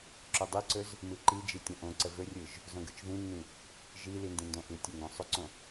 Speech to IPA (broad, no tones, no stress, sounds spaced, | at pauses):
ǁ ɵ dˤ i ǀ ɵ z | m ɯ ǃ i d͡ʒ i tʲ õ ʔ õ ǀ ə v ɵ rʲ ɯ ʒ | z õ ɡ ɯ t͡ʃ ð ĩ nː ĩ | ʒ i l i n d ĩ n d õ ʔ ɯ tʲ ɵ ŋ ɡ õ sˤ ɵ ǀ õ